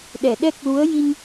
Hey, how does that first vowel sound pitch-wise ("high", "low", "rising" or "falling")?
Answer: low